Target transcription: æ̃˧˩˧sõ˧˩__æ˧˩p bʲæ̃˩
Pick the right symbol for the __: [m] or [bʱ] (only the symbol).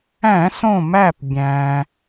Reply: m